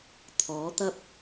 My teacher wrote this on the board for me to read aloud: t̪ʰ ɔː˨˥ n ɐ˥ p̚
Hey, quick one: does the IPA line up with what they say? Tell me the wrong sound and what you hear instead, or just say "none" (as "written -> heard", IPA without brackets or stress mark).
n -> t̪